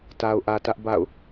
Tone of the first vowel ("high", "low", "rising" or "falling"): low